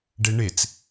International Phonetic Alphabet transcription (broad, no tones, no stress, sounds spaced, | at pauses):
ɖ e ɳ e t͡s